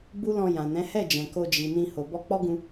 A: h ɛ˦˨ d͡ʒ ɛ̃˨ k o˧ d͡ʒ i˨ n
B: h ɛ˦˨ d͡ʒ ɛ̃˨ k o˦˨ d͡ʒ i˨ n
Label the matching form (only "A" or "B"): A